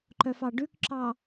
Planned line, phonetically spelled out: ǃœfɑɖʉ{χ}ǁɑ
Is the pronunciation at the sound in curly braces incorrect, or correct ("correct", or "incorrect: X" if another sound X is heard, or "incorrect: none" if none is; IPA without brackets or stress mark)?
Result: incorrect: k